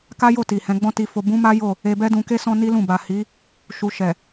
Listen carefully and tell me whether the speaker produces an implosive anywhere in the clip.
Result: no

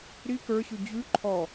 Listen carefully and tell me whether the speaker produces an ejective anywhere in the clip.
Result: no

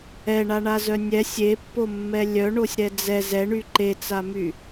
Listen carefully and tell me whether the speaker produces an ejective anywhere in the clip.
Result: no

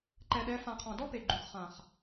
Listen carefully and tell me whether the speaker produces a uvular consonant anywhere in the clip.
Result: yes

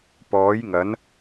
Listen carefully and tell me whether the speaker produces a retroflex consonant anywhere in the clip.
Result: no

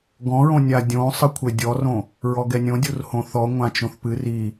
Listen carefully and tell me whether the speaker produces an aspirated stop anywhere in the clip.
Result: yes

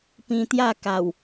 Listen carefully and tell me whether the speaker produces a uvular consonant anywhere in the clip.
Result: no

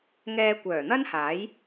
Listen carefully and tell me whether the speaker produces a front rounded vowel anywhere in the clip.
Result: yes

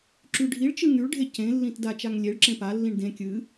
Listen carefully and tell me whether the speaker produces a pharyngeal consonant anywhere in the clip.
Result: no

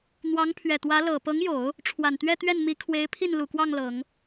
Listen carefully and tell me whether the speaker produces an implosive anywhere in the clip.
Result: no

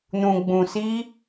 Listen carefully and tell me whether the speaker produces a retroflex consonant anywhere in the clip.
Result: no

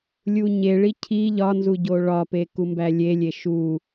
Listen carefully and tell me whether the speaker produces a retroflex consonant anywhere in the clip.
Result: yes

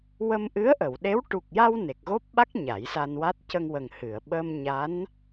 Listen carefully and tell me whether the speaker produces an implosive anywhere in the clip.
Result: yes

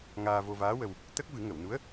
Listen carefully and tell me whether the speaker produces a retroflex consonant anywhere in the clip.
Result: no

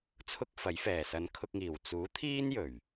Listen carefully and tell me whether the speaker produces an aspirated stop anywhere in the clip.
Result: yes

